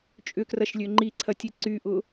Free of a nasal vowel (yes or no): yes